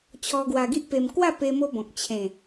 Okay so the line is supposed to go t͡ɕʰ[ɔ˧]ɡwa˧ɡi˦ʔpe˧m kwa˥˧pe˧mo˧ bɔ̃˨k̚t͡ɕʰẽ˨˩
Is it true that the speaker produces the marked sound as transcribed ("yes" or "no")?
yes